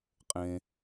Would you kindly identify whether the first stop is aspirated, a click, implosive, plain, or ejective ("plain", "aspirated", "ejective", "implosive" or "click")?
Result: ejective